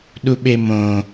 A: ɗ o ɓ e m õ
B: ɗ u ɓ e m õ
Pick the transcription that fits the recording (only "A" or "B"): B